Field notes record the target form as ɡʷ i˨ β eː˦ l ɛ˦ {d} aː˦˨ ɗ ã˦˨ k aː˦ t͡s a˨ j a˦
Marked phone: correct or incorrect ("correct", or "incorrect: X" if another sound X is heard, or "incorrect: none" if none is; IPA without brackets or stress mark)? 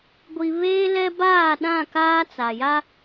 incorrect: b